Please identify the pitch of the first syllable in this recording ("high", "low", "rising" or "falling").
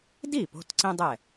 falling